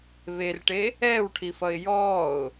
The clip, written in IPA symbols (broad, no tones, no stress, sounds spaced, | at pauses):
β e r ʈ e | ɛː w ʈʰ i f ʌ ɪ̯ j ɔː ʊ̯